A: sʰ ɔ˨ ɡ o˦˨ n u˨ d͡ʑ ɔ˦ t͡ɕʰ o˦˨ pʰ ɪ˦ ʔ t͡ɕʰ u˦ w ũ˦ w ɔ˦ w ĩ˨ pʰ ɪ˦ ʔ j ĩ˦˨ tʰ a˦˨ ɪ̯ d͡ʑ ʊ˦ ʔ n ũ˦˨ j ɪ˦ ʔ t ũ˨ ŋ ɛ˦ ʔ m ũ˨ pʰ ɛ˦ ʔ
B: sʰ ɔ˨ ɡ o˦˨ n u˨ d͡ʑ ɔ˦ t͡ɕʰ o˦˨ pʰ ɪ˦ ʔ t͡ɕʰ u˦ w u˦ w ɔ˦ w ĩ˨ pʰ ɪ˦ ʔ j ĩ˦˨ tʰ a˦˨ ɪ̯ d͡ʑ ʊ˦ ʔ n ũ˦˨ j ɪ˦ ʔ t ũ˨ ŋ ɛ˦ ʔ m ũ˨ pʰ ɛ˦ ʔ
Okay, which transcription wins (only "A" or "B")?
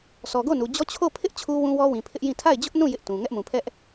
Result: A